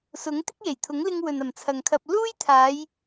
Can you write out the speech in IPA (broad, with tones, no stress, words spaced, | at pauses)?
sʊ˨˥ŋ t̪ɪ˥k̚je˨˩jt̪ʰʊ˨˥ŋlɪ˧ŋ wɵ˨nɐ˨˩mt͡sʰɐ˨ŋkʰɐ˧p̚ luː˥jt̪ʰaː˨˧j